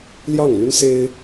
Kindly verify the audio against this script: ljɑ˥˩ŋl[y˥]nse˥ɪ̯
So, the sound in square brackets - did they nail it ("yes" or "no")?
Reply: yes